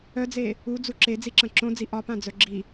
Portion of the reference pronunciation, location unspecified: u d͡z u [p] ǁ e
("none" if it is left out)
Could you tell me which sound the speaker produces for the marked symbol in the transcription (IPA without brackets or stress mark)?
none